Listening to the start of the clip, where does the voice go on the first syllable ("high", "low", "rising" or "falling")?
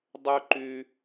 high